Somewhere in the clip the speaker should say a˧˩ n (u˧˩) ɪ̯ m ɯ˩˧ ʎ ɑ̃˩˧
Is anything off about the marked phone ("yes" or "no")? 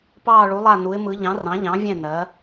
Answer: yes